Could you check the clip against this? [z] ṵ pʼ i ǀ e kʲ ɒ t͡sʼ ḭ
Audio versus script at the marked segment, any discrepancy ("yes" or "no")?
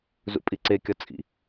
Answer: no